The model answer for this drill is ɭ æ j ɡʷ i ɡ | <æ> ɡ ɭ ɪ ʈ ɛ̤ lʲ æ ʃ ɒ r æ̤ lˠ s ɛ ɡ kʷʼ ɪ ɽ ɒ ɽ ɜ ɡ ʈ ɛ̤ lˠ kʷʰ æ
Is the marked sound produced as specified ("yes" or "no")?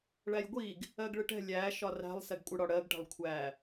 no